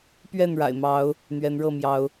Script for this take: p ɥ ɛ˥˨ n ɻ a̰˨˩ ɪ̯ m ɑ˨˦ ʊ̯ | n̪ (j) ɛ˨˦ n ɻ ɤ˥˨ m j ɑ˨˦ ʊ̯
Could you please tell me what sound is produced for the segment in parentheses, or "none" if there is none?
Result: ɥ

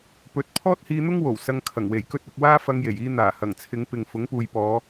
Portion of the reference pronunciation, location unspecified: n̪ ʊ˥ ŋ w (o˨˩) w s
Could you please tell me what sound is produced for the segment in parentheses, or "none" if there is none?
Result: o˨˩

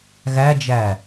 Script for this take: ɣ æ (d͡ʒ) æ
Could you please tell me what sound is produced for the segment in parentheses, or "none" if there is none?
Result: d͡ʒ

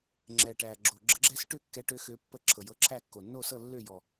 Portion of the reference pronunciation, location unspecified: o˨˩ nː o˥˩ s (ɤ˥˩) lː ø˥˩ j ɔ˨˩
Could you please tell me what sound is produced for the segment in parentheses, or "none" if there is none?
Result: ɤ˥˩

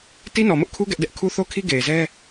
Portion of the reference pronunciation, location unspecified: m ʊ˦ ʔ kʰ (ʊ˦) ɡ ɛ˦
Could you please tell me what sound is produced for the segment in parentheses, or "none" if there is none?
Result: u˦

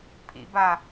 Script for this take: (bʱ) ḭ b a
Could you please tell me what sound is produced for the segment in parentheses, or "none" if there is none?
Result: pʰ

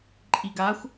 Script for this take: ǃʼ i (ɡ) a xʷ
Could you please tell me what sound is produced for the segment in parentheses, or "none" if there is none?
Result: ɡ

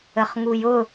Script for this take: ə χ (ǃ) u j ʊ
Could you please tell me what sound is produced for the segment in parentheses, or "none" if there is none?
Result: ŋ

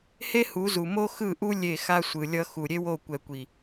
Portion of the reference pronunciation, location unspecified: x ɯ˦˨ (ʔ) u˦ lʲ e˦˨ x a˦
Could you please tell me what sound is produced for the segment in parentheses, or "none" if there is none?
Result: ʔ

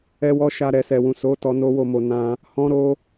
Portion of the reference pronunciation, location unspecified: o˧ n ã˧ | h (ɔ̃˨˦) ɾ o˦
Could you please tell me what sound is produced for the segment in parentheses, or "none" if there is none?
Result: ɔ̃˦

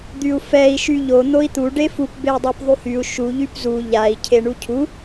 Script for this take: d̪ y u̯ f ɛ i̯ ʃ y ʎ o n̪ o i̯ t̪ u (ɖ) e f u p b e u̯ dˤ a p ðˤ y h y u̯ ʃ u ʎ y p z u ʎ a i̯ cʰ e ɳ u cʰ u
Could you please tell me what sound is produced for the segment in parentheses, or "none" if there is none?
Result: ɖ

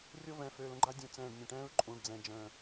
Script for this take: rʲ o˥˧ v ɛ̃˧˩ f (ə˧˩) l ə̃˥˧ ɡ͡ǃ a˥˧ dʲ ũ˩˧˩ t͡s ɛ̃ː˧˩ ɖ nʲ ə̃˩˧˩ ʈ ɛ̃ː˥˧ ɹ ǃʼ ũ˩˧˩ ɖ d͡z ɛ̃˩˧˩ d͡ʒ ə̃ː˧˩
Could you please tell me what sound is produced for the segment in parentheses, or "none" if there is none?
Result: ø˧˩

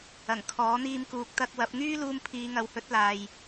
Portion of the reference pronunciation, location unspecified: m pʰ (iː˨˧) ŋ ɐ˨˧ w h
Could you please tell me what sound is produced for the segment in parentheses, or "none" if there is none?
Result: iː˨˧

